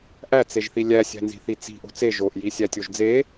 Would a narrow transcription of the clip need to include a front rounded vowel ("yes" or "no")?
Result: no